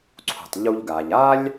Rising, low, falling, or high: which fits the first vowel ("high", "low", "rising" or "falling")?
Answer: low